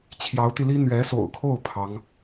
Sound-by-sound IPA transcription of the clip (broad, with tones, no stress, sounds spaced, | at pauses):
t͡ɕʰ j ɑ˧˥ ʊ̯ t̪ i˧ l i˥ n̪ ɥ ɛ˧˥ s o̰˨˩ ʊ̯ kʰ o˥˩ ʊ̯ pʰ ɑ˧˥ ŋ